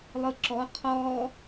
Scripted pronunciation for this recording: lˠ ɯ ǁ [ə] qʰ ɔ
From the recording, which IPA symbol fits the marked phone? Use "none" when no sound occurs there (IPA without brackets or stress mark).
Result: ɔ